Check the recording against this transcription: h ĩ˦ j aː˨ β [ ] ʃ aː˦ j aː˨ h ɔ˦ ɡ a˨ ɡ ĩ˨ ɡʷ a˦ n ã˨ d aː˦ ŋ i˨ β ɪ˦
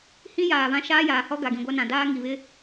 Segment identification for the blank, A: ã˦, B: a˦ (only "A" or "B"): A